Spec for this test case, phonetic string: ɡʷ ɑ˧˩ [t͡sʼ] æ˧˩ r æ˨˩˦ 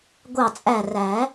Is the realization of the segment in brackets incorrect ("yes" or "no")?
no